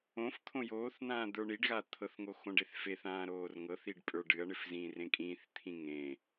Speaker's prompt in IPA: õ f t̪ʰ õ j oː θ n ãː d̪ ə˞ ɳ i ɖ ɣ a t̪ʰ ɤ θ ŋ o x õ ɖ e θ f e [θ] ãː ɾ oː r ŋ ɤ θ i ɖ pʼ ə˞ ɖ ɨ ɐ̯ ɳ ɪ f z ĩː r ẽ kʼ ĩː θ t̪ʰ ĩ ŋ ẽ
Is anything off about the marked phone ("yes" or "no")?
no